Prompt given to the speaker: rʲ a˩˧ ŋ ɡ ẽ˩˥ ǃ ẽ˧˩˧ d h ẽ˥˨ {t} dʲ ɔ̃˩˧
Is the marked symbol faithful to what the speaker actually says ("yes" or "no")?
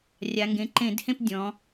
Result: no